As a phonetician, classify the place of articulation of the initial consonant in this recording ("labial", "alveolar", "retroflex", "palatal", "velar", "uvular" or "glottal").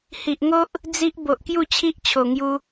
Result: glottal